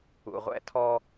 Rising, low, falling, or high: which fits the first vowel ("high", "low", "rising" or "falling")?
low